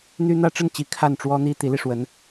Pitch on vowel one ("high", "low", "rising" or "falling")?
high